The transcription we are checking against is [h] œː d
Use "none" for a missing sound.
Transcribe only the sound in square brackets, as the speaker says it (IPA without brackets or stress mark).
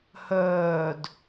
h